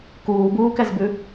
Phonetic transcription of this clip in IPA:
k uː b uː k ɛ z b ʉ

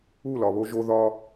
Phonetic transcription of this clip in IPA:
u˦˨ l ɒ˨ β o˦ ʒ o˦ ð ɒ˦

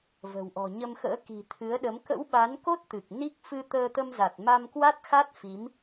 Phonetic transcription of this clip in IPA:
v ə̤˨˩ w ʔ ɔ̤˨˩ ɲ ə˧ m x ə̰ː˧˥ k i̤˨˩ t̪ʰ ɨ˨˦ ə̯ ɗ ə˨˦ m k ə̰˧˥ w ɓ a˨˦ n k o˦˥ t̚ t̪ ɨ˨˩ k̚ n i˦˥ k̚ f ɨ˧ t̪ əː˧ t̪ ə˧ m z a˨˩ t̚ m a˧ m k w a˦˥ t̚ x a˦˥ t̚ f i˨˦ m

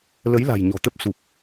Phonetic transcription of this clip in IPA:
l ə˨˦ j l a̤˨˩ j ɲ ɔ̤˨˩ t̪ ə˦˥ p̚ s u˨˩ p̚

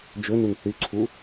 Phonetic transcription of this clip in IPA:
d͡ʒ ɵ n u n θ ʉ ǀʰ u

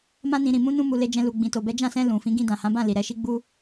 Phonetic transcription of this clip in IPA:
m ã˧ n ĩ˨ ɾ ĩ˨ m ũ˧ n ũ˧ m u˨ l e˧ d͡ʒ ɛ̃˧ l u˨ ɡ͡b ĩ˨ t o˨ b ɛ˨˦ d͡ʒ ã˦˨ s ɛ̃˧ l ũ˨ f ĩ˨˦ ɡ ĩ˧ d ã˨ h ã˨˦ b ã˦˨ l i˨ ɾ ɛ˧ ʃ i˦ ɡ͡b u˧

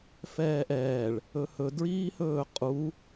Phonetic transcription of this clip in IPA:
f ɛː ʔ ɛː ɭ | ɵ h ɵ d ɹ iː h ɵː qʼ u

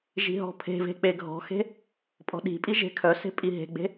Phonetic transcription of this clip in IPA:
ʒ i̤ ɦ ɔ̤ pʰ e̤ v e̤ k͡p e ɡʱ ɔ̤ x e̤ | pʼ ɔ̤ ɗ i̤ pʼ i ʒ e̤ kʰ œ s e̤ pʼ i ɦ e̤ ɡ͡b e̤

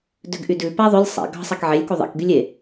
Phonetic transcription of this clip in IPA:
d ø ɡ ʔ y d ʉ p æ ðˤ ɵ lʲ sˤ ḛ ɡ ɑ̤ sˤ ɛ k ʕ e lʲ k u ðˤ ḛ k ɡ y lʲ e

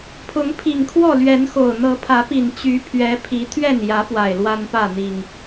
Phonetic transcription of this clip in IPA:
pʰ ʊ˨˦ ŋ pʰ i˨˩ ŋ kʰ w ɔ˥˨ l ɥ ɛ˨˦ n x o˨˩ ʊ̯ n̪ ɤ˨˦ pʰ ä˨˦ p i˨˩ n t͡ɕ y˨˦ pʰ ɥ ɛ˨˦ pʰ i˨˦ t̪ʰ ɥ ɛ˥˨ n j ä˨˦ p w a˨˩ ɪ̯ l w a˦ n p ä˥˨ n̪ i˨˩ ŋ

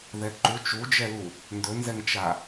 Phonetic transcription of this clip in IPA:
ð ɛ ǃ u t͡ʃ u d͡ʒ ɛ l u | n d ɵ n z ɛ ŋ t͡ʃ a

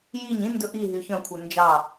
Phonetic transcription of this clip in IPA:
j i ɲ ĩ n d ɵ ʔ i ɦ y ç œ̃ kʷʰ œ n d͡ʒ ɑ

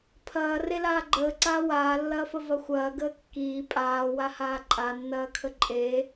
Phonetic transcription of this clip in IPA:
pʰ ɐː r e l aː ɡ͡ǃ əː ǀ aː w aː lː ɐː f ə v ɐ xʷ ɐː ɡ əː kː iː pʼ aː w a h aː ǃʼ a nː ɐː kʰ ə ǃʼ e

